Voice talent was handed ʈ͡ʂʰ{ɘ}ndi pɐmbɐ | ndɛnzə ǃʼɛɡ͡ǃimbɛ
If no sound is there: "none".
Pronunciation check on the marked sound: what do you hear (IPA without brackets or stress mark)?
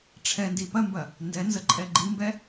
ɛ